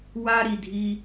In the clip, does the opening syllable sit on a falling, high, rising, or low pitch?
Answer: high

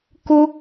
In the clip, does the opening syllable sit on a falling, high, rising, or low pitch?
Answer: high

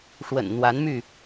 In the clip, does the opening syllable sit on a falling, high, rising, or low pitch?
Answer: low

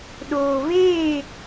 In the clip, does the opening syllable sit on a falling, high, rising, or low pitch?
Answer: low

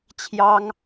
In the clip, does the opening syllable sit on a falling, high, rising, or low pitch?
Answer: high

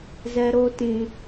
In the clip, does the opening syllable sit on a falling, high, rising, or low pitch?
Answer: high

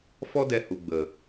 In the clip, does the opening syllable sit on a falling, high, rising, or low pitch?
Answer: high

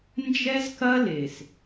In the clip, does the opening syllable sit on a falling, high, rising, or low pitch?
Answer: high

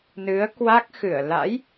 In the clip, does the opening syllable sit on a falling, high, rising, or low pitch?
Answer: rising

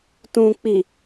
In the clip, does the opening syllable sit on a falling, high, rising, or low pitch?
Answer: low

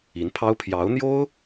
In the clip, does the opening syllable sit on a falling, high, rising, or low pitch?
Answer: rising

